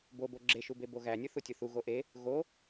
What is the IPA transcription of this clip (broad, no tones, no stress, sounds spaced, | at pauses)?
b o b o ɡ͡ǁ e ʃ u b e b o ɣ æ nʲ u θ u tʲ u θ u ɣ o ʔ e | ɣ o